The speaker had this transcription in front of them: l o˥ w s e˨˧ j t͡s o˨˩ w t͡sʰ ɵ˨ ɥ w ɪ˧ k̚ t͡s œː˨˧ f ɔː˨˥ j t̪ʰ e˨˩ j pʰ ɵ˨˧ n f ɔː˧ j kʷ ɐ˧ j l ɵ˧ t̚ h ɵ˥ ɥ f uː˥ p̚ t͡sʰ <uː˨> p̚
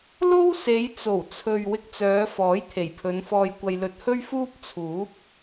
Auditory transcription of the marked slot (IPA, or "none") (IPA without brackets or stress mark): uː˨˥